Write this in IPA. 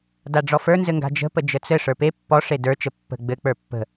d a ɖ͡ʐ ɔ f ə˞ n z ɘ ŋ ɡ a̤ d͡ʒ ə̤ p ə d͡ʒ ə t͡s ɘ ʂ ə˞ p e pː ɔ ʂ e d ə˞ t͡ʃ ə pː ə̤ ɡ͡b ɘ k͡p ə˞ pː ə̤

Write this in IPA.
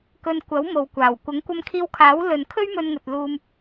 k ɵ˧ n kʷ ɐ˨˥ w m o˨ w kʷ aː˨˩ w kʷ ɐ˨˥ ŋ kʷ ɐ˧ m kʰ iː˧ w kʰ aː˨˥ w l ɵ˨ n kʰ ɵ˥ ɥ m ɵ˧ n ŋ ɵ˨ t̚ l uː˧ m

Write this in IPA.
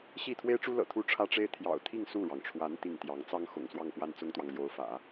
ɕ i˥˩ t̪ʰ w e˥ ɪ̯ ʈ͡ʂ u˥ l ɤ̰˨˩ t̪ʰ u˥˩ ʈ͡ʂʰ ä˥ ʈ͡ʂ e˥ ɪ̯ t̪ʰ j ɑ̰˨˩ ʊ̯ t̪ʰ i˥˧ ŋ s u˥˩ ɻ ɑ˩ ŋ ʈ͡ʂʰ w a˧˥ n t̪ i˥˩ ŋ t̪ j ɑ˧˥ ŋ t͡s ɑ˥ ŋ x ʊ̰˨˩ ŋ s w ɑ˥˧ ŋ p w a˥˩ n t͡s ʊ˥ ŋ t̪ w ɑ˨ ŋ l j o˧˥ ʊ̯ f ä̰˨˩˦

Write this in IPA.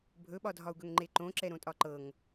bʱ ɵ ɓ ɒ dʱ ɒ u̯ ɡ ɵ ŋ ŋ͡ǃ e ǃ õ ǁ ɛ ɾ õ tʼ ɒ ǃ ɤ ŋ

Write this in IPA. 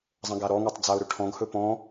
zˤ ə̃ ɡ a ɾ ɔ ŋ ɵ tˤ d͡z a ʊ̯ ɾ ɵ ʈʰ ɔ̃ ɡ h ɵ p ɔ̃

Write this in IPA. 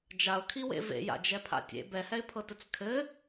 d͡ʒ a ʊ̯ kʰ i w ḛ v ḛ j a̰ d͡ʒ ɛ pʰ a̰ tʲ ḛ b ɛ h ɛ ɪ̯ pʰ ɤ t ɘ t͡s kʰ ɘ

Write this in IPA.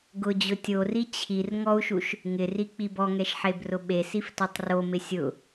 ɡ ʊ d͡ʑ ʊ tʲ o r i t͡ɕʰ i r ŋ ɔ u̯ ʃ u ʃ | ŋ ɪ r i k͡p i b ɔ ŋ ɛ ʃ ħ e b r ʊ ɓ e s i f t o tˤ r o m ɪ sʲ ʊ

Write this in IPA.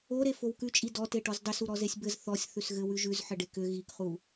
o ɾ e f o w k ʉ t͡ʃʼ i d ɔ t e ʈ ɔ z dˤ ʏ s u ɾ ɔ z e sʲ b ɘ z θ ɔ sʲ θ ʉ s ɣ ɘ w ʉ ʒ ʉ z ħ ɘ ɖ e k ʏ ɣ i k χ u

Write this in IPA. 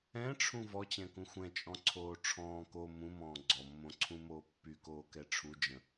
ɛ̃ ʈ͡ʂʰ ũ v ɔ t͡ɕ ɛ̃ k ũ xʷ ɛ̃ t͡ʃʼ ɔ̃ ǀʰ oː ʈ͡ʂʰ ɔ̃ː k o m ũ m ɔ̃ː ɡ͡ǀ ɔ mː õ ǀʰ ũ m oː pː y k oː k ɛ ʈ͡ʂʰ u d͡ʒ ə̃

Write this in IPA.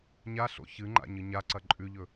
ɲ a ɬ o̰ ç ɨ ŋ͡ǃ a̰ ɲ ɨ ɲ a ǀ ɐ ǃʼ ʉ ʎ ɵ

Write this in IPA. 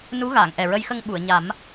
n u˧˥ ɣ aː˨˩˨ ŋ ʔ ɛ˨˩ ɹ ə˧ j x ə˧ ŋ ɓ u˨˩˨ ə̯ ɲ a˨˩˦ m

